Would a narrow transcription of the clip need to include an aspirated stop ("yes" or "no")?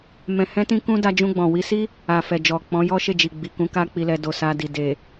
no